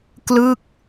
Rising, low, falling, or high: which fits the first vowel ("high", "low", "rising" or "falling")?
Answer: falling